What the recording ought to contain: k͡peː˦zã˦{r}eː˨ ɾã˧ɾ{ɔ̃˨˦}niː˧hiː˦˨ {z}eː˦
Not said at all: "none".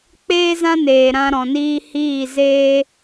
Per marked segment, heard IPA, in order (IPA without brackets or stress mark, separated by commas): n, ɔ̃˨, z